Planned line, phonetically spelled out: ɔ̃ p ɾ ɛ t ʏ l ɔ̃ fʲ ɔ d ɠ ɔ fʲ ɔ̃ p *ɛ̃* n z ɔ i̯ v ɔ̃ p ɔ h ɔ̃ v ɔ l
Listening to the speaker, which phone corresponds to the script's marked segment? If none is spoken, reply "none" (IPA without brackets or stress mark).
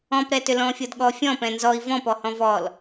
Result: ɛ̃